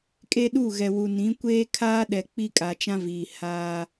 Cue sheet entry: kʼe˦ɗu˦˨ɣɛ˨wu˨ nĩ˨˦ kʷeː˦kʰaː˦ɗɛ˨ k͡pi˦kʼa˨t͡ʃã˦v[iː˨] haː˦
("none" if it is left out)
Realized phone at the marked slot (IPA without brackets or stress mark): iː˨